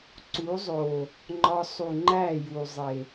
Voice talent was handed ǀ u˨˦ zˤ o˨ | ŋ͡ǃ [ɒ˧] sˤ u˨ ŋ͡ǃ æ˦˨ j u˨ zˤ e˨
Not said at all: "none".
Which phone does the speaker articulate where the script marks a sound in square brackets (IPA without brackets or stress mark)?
ɒ˧